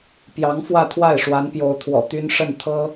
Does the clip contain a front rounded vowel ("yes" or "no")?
yes